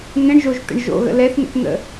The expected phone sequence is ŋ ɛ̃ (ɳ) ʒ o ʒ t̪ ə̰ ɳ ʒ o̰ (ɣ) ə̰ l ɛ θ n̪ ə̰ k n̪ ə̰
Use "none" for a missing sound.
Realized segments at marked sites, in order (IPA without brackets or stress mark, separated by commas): ɳ, ɣ